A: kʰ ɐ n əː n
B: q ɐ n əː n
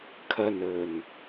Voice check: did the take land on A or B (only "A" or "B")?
A